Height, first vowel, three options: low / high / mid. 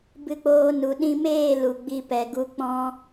high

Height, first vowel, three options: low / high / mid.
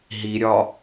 high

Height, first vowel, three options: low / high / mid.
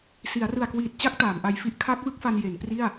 high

